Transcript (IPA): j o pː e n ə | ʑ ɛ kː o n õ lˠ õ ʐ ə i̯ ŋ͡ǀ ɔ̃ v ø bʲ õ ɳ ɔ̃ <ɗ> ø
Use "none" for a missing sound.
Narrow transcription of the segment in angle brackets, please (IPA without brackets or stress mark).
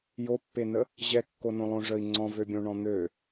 n̪